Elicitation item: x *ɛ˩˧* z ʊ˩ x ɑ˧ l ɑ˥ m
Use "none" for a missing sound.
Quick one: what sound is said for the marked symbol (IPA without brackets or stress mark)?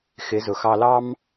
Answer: ɪ˩˧